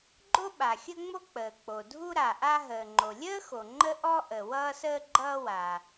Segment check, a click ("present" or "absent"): present